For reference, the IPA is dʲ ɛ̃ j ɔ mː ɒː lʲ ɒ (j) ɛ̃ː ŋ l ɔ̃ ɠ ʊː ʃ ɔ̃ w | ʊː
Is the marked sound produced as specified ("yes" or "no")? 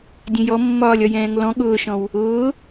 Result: yes